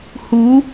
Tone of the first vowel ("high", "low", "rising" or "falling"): rising